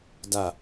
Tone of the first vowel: falling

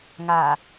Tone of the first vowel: low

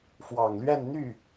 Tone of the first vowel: low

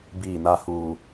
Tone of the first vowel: falling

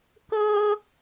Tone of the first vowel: high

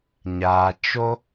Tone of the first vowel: low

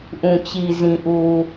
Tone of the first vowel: low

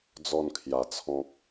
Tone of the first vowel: falling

